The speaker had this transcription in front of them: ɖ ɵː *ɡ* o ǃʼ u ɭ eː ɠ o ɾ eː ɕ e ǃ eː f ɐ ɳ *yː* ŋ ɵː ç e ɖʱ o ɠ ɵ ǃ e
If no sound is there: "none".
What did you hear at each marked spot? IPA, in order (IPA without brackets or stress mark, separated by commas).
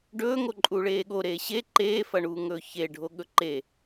ŋ, uː